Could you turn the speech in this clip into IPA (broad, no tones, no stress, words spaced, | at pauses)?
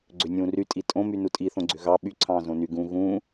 ɡ͡ǀønʲũːry tʼitʼõmy nutʼiθõɡ͡ǀø ɣɑ ɓyǀʰɑ̃ː zõny ɡũ ɣũː